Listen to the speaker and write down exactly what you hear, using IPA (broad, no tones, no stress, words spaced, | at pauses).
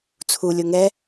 t͡sʰulʲo ŋɛ